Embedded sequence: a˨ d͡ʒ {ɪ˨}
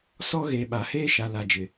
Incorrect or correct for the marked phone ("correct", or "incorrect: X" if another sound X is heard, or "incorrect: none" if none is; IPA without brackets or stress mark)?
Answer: correct